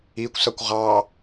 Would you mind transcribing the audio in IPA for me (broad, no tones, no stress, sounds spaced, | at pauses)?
i kʷ s ʌ kʷ ʁ ɑ